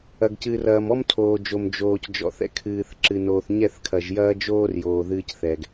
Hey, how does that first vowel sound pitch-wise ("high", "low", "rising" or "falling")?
low